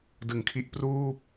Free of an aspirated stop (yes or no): no